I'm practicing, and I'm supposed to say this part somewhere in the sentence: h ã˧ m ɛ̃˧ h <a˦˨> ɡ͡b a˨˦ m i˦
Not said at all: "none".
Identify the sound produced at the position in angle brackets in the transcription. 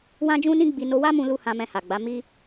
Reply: a˨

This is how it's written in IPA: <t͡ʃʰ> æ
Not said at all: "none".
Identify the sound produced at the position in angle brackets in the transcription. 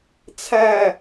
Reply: t͡sʰ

